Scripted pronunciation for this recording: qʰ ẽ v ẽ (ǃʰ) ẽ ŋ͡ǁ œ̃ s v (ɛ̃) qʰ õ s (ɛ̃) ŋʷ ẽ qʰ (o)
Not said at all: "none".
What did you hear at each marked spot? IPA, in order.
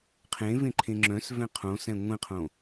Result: ǃʰ, ɛ̃, ɛ̃, õ

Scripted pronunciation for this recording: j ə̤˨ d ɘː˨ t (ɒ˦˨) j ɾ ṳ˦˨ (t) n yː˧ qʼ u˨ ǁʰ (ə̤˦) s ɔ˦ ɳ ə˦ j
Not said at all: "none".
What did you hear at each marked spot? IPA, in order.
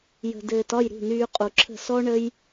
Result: ɒ˦˨, none, ə̤˦˨

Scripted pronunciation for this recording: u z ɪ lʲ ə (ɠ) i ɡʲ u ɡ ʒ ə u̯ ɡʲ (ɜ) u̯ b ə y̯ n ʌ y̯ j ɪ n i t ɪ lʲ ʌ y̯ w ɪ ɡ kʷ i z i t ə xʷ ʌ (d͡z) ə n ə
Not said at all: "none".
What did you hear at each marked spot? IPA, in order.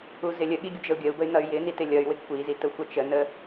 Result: ɠ, ɜ, t͡ʃ

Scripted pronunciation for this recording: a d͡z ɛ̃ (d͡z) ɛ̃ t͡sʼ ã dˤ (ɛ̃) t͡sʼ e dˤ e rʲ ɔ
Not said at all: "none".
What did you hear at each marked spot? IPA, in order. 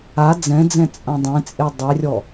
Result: d͡z, ẽ

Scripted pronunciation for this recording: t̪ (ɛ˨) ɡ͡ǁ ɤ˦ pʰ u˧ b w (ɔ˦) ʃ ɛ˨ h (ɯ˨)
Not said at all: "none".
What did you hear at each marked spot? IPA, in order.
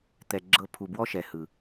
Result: ɛ˧, ɔ˦, ɯ˨

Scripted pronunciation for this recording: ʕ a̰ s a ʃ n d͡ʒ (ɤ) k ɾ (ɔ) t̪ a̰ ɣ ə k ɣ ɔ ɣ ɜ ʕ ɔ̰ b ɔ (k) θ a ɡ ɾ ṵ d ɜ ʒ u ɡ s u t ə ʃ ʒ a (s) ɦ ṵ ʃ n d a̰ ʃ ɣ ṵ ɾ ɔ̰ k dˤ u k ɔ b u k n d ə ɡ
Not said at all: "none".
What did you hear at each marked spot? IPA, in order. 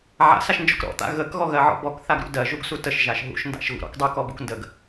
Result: ɔ, ɔ̰, k, ʃ

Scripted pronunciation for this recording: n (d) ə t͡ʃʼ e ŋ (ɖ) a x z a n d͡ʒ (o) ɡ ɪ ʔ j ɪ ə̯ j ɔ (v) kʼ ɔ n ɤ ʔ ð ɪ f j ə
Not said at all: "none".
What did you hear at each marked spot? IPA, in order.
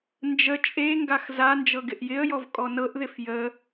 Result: d͡ʒ, ɡ, ɤ, v

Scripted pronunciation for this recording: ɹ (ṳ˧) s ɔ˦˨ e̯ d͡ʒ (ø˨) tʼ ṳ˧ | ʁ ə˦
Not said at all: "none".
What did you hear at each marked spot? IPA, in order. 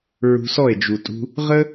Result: ṳ˧, u˨

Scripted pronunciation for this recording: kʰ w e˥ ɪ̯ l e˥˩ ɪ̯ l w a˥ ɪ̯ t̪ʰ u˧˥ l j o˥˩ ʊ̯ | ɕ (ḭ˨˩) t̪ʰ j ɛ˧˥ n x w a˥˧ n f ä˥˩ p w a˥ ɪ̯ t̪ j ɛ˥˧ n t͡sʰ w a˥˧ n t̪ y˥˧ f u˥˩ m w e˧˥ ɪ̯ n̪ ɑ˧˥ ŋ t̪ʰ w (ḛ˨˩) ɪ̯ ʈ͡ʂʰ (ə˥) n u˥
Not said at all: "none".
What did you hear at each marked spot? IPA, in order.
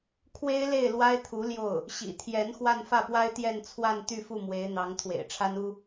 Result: ḭ˨˩, ḛ˨˩, a˥

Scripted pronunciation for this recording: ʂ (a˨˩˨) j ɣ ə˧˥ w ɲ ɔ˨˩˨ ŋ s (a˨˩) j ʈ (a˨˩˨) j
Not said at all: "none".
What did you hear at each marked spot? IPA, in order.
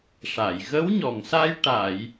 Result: a˨˩˨, a˧, a˨˩˨

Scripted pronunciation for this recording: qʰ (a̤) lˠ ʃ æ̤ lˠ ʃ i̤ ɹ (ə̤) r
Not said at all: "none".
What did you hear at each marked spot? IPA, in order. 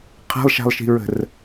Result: a̤, ə̤

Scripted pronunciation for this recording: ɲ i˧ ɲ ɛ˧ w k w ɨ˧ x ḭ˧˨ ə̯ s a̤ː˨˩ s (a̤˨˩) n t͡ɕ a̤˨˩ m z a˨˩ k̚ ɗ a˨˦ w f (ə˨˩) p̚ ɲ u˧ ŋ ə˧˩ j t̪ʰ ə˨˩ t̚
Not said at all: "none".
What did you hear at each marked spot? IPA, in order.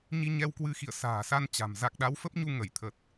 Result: a˧, ə˦˥

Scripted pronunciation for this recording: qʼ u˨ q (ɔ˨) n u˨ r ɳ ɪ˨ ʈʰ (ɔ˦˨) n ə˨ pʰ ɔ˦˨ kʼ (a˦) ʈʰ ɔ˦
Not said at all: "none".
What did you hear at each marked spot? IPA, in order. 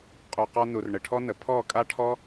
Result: ɔ˧, ɔ˦, a˦

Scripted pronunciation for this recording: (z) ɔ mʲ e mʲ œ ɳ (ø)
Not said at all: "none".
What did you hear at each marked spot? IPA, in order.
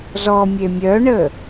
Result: z, ə

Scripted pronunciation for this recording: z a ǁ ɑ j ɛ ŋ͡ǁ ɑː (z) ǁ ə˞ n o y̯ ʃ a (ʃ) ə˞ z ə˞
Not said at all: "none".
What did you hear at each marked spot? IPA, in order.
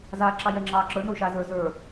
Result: none, z

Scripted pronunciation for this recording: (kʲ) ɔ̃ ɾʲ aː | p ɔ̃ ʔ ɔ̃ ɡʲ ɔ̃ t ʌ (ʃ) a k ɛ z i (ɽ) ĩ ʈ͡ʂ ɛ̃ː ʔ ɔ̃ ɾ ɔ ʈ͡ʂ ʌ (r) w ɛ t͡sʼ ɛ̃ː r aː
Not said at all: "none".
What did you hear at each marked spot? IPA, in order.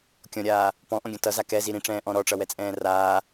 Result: kʲ, z, ɾ, none

